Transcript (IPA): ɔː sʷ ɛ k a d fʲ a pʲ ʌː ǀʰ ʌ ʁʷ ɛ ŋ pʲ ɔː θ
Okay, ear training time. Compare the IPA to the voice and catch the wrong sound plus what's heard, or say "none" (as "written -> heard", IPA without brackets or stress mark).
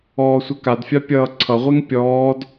θ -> d